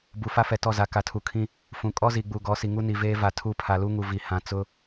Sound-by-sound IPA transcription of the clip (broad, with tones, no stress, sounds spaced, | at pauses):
b u˨ f a˦ f ɛ˨ t ɔ˦˨ z a˨ k a˨ tʰ u˨ kʰ ĩ˦ | f ũ˨ kʼ ɔ˦ z i˨ ɡ͡b u˨ ɡ ɔ˨˦ s i˨ ŋ u˦ n i˨ v eː˦ v a˨ tʰ u˦˨ pʰ a˨ l u˦ ŋ u˨ v i˨ h ã˨ t͡s ʊ˦